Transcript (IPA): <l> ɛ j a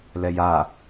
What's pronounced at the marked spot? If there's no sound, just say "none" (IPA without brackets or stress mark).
l